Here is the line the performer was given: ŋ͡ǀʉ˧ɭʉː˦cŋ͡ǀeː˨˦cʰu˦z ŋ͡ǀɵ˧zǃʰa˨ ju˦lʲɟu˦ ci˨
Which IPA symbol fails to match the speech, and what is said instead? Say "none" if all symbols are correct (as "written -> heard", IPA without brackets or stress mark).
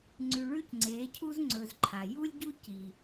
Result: none